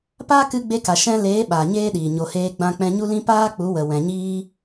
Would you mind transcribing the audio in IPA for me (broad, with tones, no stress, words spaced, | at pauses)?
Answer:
paː˦kɨ˧ɡ͡be˧ka˨ ʃɛ̃˦ leː˨˦ ɓaː˨ɲeː˦ɗiː˨ ɲo˨heː˧ ɡ͡bã˧k͡pɛ̃˧ɲu˦lĩ˦ paː˦k͡pu˨˦ wə˨wɛ̃˨ɲiː˦